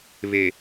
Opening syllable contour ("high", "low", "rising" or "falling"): low